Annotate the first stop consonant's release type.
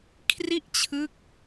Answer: aspirated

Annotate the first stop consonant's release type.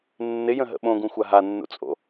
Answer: implosive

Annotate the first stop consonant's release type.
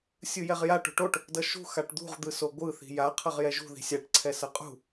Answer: plain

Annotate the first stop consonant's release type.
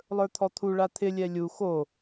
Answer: aspirated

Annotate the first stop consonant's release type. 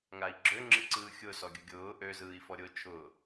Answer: click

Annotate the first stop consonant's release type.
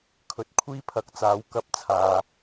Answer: aspirated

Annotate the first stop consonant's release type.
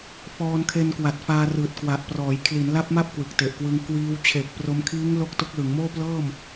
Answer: aspirated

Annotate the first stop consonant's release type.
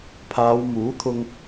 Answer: aspirated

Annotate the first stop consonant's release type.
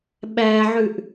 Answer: implosive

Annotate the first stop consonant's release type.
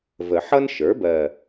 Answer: plain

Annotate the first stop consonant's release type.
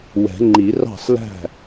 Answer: click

